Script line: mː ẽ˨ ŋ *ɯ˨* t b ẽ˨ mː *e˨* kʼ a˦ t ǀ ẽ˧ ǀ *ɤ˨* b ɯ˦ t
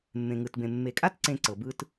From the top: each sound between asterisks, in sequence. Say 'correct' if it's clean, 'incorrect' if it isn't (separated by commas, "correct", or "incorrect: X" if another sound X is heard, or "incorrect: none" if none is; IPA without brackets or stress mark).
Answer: correct, correct, correct